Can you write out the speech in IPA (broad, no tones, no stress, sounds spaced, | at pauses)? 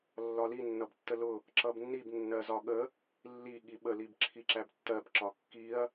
lː ɒ l i nː ʌ b tː ə l ʊ | ǁ ʌ b nː i b nː ɜ z ɒ ɠ ə | lː i ɠ i ɓ ə l i b ǁʰ i ǁ æ b tː ɜ b ǁ ɒ kː i ɐ̯